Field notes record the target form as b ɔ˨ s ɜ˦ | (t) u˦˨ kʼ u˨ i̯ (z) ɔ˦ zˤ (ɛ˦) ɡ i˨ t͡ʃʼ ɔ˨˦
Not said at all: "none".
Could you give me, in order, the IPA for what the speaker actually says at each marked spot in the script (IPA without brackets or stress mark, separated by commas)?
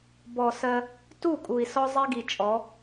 t, s, ɛ˦